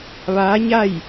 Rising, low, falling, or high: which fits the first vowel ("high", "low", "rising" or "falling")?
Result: rising